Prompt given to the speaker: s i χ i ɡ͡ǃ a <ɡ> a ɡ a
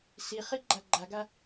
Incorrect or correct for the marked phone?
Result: incorrect: ɡ͡ǃ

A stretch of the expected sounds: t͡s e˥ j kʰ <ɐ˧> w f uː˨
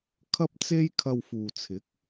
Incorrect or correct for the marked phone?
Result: correct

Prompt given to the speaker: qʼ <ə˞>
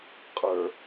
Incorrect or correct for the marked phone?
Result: correct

